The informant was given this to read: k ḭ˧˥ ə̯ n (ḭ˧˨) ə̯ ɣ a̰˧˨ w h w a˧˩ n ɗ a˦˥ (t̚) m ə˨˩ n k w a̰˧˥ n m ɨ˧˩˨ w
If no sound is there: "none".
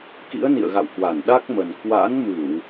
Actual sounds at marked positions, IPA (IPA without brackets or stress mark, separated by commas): ḭ˧˨, k̚